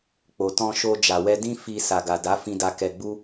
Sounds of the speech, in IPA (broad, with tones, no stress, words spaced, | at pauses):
k͡po˨tɔ̃˧ ʃo˧ d͡ʒa˨wɛ˧dĩ˦ fi˧ sa˨ɡa˨da˨˦ fĩ˧da˧ kɛ˧ɡ͡bu˦